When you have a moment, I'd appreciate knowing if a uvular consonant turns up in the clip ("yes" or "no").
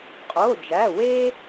yes